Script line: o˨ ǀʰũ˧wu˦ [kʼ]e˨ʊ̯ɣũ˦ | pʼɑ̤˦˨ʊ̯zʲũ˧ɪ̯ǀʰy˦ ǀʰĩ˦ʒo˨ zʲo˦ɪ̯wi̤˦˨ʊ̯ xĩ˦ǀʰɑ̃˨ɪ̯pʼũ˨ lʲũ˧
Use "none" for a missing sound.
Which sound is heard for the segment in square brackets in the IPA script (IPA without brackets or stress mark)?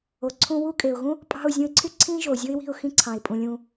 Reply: kʼ